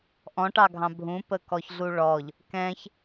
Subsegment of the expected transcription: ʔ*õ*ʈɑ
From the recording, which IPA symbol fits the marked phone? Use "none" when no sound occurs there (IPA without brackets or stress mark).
ɔ̃